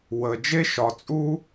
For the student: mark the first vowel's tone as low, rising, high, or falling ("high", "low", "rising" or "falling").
low